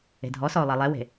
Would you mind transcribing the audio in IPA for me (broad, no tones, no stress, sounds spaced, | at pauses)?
e̤ dʱ ɔ s ɔ ʊ̯ lˠ ɛ lˠ ɛ w e̤